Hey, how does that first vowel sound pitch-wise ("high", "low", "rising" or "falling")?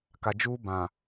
low